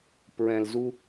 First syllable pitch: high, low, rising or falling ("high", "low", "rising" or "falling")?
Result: low